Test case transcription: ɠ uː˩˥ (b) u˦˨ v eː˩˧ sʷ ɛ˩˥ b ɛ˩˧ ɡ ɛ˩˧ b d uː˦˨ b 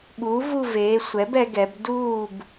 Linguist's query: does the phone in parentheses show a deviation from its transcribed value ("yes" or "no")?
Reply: yes